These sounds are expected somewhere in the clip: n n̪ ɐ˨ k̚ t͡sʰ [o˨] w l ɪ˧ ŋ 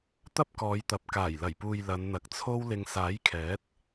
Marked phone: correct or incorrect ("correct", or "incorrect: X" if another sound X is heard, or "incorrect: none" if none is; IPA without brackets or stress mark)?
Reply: incorrect: o˥